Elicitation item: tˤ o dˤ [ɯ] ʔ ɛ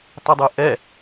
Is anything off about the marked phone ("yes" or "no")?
no